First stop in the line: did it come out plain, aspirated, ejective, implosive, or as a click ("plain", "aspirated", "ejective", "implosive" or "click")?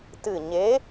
plain